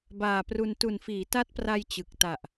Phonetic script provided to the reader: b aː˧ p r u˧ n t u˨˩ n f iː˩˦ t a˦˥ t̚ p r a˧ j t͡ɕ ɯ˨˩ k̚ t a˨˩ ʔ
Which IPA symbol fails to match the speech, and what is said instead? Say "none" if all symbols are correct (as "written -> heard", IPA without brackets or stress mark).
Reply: aː˧ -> aː˨˩